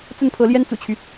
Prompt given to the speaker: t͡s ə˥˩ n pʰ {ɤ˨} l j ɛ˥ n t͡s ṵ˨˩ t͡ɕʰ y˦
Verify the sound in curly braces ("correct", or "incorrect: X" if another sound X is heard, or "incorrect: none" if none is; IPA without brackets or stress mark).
incorrect: ɤ˧˥